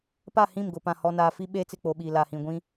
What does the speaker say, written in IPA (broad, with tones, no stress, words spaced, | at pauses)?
pa˦˨hĩ˦˨mɡʊ˨ pã˨hɔ˨naː˨fi˦ ɓeː˦t͡sɪ˦˨k͡po˨ɓiː˨ la˨hĩ˨ɡʷĩ˦